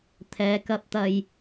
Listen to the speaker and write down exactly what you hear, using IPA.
t̪ʰɛː˨˧kɐ˧p̚t̪ɐ˧j

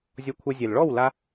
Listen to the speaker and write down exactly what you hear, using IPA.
zʲɔ˧kʷʰɤ˧zʲɛ˨l ɭɔ˦˨w la˧

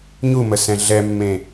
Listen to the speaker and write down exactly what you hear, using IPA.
ɲuməsɛ̃ ɮɛmːẽ

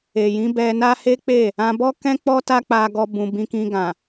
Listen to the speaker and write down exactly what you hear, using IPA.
e˨jĩ˨˦bɛ˧na˦ he˦k͡pe˦˨ | ã˧bɔ˦kɛ̃˦ k͡pɔ˦ta˦ k͡pa˦ɡɔ˦bũ˧ bĩ˧kĩ˧ɡã˨

